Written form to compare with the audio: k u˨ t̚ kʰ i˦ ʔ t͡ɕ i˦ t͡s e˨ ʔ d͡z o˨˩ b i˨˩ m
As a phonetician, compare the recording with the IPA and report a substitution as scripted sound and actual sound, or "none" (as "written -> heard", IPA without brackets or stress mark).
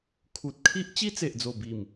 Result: k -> kʰ